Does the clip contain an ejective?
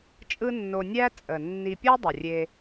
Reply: yes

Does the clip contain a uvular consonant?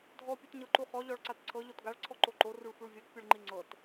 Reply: yes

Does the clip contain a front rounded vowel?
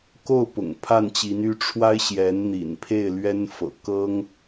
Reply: yes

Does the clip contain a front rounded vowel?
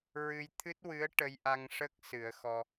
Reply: no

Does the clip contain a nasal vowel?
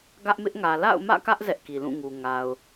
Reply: yes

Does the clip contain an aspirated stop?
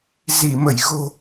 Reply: no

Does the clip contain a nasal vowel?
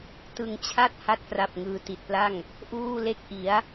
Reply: no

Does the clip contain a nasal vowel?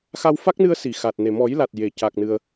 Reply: no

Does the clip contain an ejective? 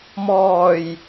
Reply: no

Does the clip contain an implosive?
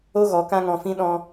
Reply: yes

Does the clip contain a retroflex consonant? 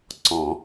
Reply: no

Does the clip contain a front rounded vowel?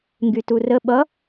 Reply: yes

